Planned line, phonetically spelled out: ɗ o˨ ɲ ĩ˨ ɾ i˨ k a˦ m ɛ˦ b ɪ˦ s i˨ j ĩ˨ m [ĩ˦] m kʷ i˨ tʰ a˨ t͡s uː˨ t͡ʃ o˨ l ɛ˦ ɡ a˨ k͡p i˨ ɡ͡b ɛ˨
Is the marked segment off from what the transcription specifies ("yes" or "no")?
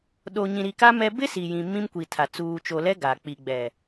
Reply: no